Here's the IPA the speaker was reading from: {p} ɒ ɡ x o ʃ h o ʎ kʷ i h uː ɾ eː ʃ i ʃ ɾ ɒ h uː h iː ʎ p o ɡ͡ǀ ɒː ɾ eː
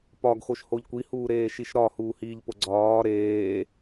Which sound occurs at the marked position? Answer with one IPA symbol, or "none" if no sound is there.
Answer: p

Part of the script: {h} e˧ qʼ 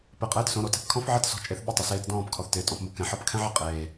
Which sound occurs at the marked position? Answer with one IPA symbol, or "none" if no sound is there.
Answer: p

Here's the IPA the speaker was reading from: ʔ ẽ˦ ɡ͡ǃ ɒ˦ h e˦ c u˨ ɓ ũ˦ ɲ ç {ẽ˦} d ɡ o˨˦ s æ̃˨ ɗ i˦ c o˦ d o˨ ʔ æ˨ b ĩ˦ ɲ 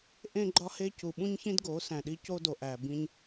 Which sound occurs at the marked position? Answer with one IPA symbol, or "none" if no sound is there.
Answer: ĩ˦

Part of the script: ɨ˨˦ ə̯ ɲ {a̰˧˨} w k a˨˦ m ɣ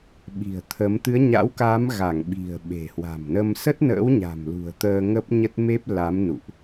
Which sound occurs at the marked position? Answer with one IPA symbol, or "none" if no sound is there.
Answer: a̰˧˥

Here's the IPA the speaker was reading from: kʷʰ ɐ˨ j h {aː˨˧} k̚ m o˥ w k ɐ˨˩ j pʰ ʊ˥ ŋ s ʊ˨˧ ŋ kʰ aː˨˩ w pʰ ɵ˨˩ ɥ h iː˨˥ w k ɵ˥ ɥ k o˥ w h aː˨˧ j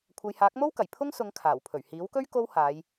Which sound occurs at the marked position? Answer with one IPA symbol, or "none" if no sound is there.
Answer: aː˨˥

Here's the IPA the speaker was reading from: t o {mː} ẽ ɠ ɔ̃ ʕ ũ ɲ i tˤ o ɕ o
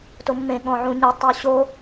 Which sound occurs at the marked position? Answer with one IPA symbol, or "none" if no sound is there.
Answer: mː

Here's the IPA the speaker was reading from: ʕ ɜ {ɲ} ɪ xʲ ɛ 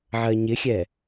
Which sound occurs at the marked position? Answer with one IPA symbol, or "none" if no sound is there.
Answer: ɲ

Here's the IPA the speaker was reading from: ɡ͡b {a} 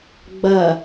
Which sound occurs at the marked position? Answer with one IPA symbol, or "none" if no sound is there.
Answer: ɐ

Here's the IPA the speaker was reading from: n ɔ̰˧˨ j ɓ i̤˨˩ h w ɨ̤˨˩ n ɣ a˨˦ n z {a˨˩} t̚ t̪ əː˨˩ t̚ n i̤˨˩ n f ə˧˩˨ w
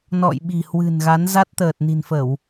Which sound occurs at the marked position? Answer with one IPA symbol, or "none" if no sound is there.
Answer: a˦˥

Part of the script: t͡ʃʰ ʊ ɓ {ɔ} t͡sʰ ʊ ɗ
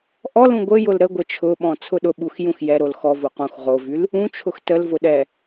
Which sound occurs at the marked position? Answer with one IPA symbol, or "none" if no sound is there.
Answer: ɔ̃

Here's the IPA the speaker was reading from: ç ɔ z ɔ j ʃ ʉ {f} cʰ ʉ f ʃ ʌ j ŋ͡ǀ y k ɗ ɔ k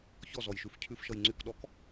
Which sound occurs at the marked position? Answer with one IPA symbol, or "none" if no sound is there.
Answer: f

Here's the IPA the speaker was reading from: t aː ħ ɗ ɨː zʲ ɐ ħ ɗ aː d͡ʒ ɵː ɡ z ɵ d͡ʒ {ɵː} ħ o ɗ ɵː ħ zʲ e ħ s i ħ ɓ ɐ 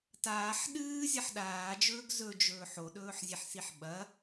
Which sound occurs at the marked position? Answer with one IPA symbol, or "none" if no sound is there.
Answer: ɵː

